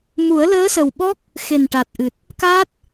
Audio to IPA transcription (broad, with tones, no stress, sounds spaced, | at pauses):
m u˨˩˦ ə̯ l əː˧˥ s ə˨˩ w ɓ ɔ˦˥ k̚ | x e˨˩ n ʈ a˨˩ t̚ ʔ ɨ˨˩ t̚ | k a˦˥ t̚